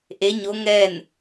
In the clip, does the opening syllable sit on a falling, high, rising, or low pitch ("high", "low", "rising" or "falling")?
rising